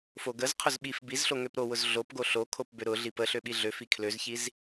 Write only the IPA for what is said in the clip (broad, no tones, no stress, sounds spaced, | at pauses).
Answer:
f o ɡ ə z qʰ ʊ z ɓ i f b i z ɬ o ŋ ø p ɾ o w ʊ z ɮ o p ɡ o ɬ o kʰ o p b ø ɾ ʊ ɮ i p ə ɬ ø ɓ i ɮ ø f i kʰ l ø z ç i z